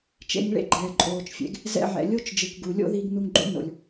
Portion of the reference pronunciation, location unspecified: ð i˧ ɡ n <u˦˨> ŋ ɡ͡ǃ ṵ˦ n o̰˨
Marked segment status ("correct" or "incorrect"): incorrect